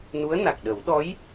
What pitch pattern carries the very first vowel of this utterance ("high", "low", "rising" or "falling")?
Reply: rising